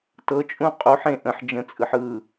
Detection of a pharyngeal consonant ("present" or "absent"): present